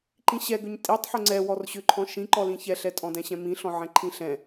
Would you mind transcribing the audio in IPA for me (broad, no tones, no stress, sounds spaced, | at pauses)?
ǃ ĩ ɕ ɛ ɡ ʏ ɲ tʼ i tˤ ħ ʏ ŋ͡ǀ ɛ w ɔ r ɕ ʏ ǃʰ ɔ̃ ʃ ĩ ǃ ɔ l ĩ ç ɛ ɬ ɛ tʼ ɔ̃ d ɛ̃ ɕ ɛ̃ m ĩ ɬ ɔ̃ ʕ ɛ̃ ǃʰ ĩ ɬ ɛ̃